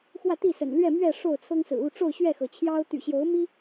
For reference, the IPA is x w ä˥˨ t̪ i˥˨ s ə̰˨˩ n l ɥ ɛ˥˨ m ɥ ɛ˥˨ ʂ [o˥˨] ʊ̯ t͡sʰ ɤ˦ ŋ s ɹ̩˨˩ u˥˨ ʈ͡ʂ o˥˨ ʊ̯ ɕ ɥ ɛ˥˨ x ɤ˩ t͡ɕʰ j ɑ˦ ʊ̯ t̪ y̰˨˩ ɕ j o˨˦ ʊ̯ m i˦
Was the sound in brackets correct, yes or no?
yes